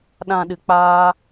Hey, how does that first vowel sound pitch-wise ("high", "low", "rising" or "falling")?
low